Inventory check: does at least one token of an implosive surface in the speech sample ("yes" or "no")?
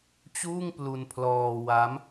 no